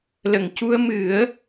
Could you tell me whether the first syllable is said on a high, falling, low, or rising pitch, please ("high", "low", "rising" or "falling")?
low